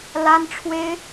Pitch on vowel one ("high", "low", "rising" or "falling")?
high